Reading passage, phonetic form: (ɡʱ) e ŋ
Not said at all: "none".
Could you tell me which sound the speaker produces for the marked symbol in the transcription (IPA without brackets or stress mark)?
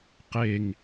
q